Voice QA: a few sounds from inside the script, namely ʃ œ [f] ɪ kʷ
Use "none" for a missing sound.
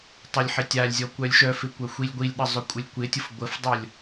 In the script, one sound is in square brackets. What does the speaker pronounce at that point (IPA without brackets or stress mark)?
f